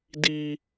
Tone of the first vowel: high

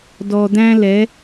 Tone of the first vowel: low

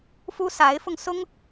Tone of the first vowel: high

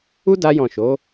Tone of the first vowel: high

